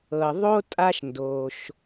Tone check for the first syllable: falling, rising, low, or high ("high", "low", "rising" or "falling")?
low